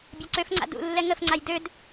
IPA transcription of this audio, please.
bʲaǀøfŋ͡ǀa̰ dṵ lːɛŋəfŋ͡ǀaj død

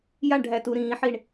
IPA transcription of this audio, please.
jaɳɖʱætu ɾĩːħiɳ

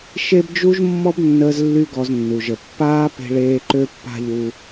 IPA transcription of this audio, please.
ʃe˦bd͡ʒu˦ʒ mːɔ˦bnːəː˧zlːy˧ ɡɔ˧znːu˨ʒə˨ pːaː˦pe̤˧ɭeː˧ ǃø˦pːa̤˦ʎu˧

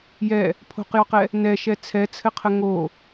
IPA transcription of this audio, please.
jɛ | pʰo̤qjɔqɛ | nɛʃɛ t͡sʰɛt͡sʰɘqʰə ŋo

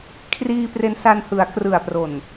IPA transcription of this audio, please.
kʰriː˧pre˧nsa˧n hɯ˩˦a̯ krɯ˨˩a̯pro˨˩n

